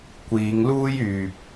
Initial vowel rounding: unrounded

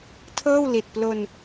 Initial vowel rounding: unrounded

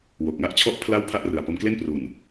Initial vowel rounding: rounded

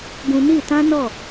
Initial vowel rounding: rounded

